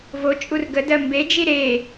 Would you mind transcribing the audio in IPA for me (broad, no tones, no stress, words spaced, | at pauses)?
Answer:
vo t͡ʃʼurɡədɜ mbed͡ʒi ɾe